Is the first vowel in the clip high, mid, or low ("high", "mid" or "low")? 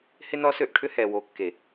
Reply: high